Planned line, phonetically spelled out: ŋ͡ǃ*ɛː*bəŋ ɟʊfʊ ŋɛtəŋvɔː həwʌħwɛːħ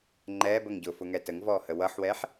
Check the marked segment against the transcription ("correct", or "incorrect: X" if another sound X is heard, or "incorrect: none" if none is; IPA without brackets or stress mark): correct